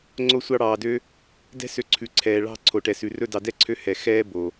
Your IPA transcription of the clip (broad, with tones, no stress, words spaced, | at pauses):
ŋ͡ǀo˦ sʷɑ˧ɽɑː˨dø˧ | dɛ̤˦ sø˧ǀʰʉ˨ǀʰɛː˨ ɭɑ̤˦˨ ǀʰo˨ʈɛ˨sʉ˨rɵ˦˨ dɑ˨dɛ˦˨ǀʰø˧ hɛ˨ xɛː˦ bo˨